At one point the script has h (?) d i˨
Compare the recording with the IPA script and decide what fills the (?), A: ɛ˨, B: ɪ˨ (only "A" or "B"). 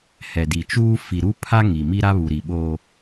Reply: A